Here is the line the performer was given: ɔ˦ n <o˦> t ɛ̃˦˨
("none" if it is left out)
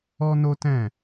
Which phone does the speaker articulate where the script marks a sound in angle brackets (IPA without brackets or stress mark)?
o˦